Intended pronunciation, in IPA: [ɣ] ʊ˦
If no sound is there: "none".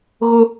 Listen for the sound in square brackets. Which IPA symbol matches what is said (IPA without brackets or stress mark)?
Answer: ɣ